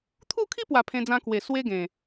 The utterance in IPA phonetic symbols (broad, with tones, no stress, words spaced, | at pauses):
t̪ʰu˥˧kʰi˦pwa˨˩ pʰẽ˧d͡zã˧kwe˨˩ swe˧ ɡẽ˨˩